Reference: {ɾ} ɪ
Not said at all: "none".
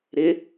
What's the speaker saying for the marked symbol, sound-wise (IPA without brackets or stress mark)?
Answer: ɾ